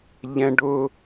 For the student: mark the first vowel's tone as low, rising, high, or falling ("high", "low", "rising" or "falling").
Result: high